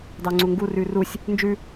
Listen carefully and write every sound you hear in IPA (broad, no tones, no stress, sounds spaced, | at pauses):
d ɑ ŋ͡ǀ u ŋ ɡ u r ʉ r u sʲ | n d͡ʒ ʉ